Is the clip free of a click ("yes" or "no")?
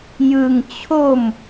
yes